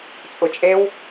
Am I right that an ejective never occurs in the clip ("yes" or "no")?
no